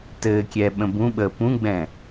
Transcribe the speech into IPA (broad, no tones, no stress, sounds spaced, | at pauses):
t ɘː kʲ ɛː ɓ ə̃ b ũ ɓ əː p ũ ɡ͡b ɛ̃